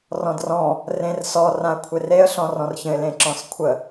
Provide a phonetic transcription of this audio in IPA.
r ɔ̃ d r ɔ̃ | r ẽ r s ɔ r ã ə̯ kʷʰ e r e ə̯ ɬ ɔ̃ r ɔ̃ r ç ə̃ ɪ̯ l ẽ ǁ ɔ̃ s kʷʰ ə

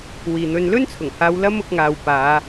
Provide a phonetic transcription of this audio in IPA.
w iː˨ n̪ ɵ˧ n l ɵ˥ n t͡sʰ ʊ˨˩ ŋ h aː˧ w l ɐ˥ m ʊ˧ k̚ ŋ aː˨ w p aː˨˧

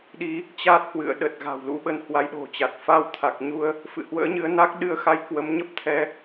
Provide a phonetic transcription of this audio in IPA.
ɗ i˨˦ | t͡ɕ a˦˥ t̚ h w ɨ̰˧˨ ə̯ ɗ ə˨˩ t̚ ɣ a̤˨˩ w l ṵ˧˥ ɓ ə˨˦ n h w a˨˦ j ɗ o̤˨˩ t͡ɕ a˨˩ t̚ f a˧ w t̪ʰ a˨˩ k̚ ɲ u˧ ə̯ | f ɨ̰˧˨ h w ə̰ː˧˥ ɲ ɨ˨˦ ə̯ n a˦˥ k̚ ɗ ɨ˧ ə̯ x a˧ j k w ə˨˦ m ɲ ə˦˥ p̚ t̪ʰ ɛ˨˦

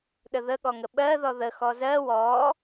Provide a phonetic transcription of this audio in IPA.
ɗ ə ð ə ɠ ɔ ŋ ə ɓ ɜ ð ɔ ð ə x ɔ z ɜ w ɔ

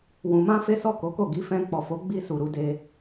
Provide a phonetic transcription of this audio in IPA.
w ũ˨ m ã˧ f e˦ s ɔ˦˨ k o˨˦ k o˦˨ ɡ i˧ f ɛ̃˧ k͡p ɔ˨ f o˨˦ ɡ͡b i˧ s u˨ ɾ u˧ d e˧

